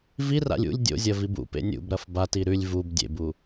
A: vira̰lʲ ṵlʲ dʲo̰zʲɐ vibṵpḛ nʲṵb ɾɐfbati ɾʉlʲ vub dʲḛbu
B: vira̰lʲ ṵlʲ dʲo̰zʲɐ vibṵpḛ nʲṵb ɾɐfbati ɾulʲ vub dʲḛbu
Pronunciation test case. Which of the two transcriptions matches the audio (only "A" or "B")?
A